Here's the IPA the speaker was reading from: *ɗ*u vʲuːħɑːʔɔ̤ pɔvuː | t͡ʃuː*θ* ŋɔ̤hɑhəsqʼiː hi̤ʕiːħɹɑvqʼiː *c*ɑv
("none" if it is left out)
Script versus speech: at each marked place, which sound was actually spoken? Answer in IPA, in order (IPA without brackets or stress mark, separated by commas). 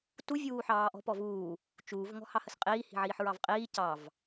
t, v, c